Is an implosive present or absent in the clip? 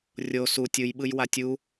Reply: present